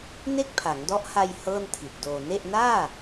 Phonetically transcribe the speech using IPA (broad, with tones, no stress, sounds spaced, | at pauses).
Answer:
n e˥˩ k̚ pʰ a˩˦ ŋ d ɔ˦˥ ʔ h a˧ j h ɤː˥˩ n tʰ i˨˩ t̚ d oː˧ n e˥˩ ʔ n aː˥˩